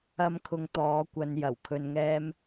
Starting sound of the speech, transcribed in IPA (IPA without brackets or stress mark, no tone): ɐ